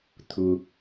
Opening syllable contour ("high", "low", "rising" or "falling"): low